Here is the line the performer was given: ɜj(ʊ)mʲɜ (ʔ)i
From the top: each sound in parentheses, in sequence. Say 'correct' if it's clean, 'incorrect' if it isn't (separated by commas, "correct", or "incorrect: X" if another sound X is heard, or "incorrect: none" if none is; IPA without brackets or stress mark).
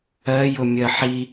correct, incorrect: ħ